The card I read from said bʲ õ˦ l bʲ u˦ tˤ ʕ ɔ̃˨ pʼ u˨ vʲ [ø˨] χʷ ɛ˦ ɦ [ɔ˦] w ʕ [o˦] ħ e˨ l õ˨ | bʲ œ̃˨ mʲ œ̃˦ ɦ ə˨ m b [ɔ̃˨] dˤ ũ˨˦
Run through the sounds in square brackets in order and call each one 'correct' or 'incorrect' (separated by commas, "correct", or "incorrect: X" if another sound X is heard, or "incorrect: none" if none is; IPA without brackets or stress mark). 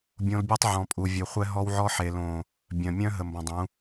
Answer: correct, correct, incorrect: ɔ˦, correct